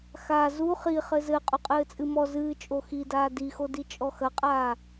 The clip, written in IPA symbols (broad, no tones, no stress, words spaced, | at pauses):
xa zu χi χɘzɘ qʼuqʼɘːt͡sʼɨmɔ zɨː t͡ʃʼoxidaː dixodi t͡ʃʼɔxɐqʼaː